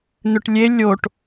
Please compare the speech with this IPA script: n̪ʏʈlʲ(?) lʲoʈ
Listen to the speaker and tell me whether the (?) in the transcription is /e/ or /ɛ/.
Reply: e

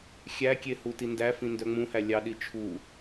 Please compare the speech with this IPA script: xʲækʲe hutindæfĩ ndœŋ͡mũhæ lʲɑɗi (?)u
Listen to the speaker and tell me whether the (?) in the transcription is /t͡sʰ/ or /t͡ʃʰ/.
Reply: t͡ʃʰ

